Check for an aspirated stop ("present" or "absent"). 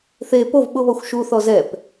absent